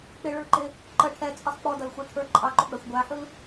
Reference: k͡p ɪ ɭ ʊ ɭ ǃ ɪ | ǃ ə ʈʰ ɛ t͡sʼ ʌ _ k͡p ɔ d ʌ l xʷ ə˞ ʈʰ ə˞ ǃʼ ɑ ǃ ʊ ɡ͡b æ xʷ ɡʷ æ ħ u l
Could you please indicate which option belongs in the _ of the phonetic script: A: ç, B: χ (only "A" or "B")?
B